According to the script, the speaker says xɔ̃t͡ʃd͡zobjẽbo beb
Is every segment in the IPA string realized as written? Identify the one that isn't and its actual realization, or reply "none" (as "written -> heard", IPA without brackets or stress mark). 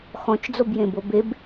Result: none